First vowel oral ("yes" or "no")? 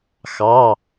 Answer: yes